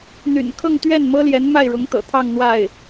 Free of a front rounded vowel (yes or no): no